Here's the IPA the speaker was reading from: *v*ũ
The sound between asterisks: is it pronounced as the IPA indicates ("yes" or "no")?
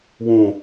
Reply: no